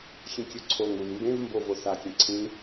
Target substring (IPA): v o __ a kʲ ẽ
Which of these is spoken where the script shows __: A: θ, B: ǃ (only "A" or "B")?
A